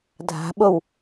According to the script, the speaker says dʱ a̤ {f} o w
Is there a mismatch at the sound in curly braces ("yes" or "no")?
yes